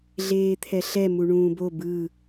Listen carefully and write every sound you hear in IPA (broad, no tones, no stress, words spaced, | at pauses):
ɮeːt̪ʰɛɬɛ muɳũːbo bɯ